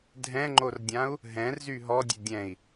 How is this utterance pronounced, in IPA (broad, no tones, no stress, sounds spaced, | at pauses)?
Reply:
dʱ ɛ̃ ŋ͡ǃ o r dʲ ã u̯ | ɦ ɛ̃ r z y ɦ ɔ dʲ e dʲ ɛ̃ i̯